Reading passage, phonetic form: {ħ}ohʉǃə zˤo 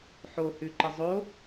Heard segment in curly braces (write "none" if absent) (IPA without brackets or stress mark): ħ